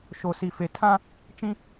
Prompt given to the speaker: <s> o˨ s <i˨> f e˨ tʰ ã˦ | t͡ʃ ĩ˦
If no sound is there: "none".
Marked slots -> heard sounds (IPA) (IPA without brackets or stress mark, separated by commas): ʃ, i˨